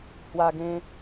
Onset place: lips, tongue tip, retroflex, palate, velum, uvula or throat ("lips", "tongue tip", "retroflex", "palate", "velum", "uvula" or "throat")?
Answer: throat